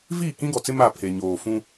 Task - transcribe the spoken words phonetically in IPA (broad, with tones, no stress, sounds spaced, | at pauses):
v iː˦˨ k ĩ˦ ɡ ɔ˨ t͡s ɪ˦ m a˦˨ pʰ e˨ ɲ oː˨ f ũ˦